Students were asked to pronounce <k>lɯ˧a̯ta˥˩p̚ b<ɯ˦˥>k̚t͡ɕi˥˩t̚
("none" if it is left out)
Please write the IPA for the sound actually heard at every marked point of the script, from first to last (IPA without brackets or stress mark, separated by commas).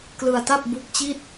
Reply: k, u˦˥